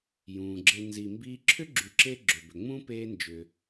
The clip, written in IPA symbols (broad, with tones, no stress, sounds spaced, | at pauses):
j ũː˩ ɡ͡ǁ e˨ n z i˨ m b iː˦ ǁʰ ʏ˥ ɡ͡ǁ y˨ ǁ e˦ ɡ͡ǁ ʏ˨ b ʏ˨ ŋ͡m ũ˥ p eː˦ n d͡ʒ ʏ˨